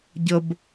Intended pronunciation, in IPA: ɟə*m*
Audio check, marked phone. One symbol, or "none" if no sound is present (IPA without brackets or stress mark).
b